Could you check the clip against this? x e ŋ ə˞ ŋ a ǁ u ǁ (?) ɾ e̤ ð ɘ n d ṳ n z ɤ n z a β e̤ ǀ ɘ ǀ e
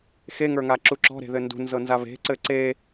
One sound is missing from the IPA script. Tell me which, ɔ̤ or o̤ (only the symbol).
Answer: ɔ̤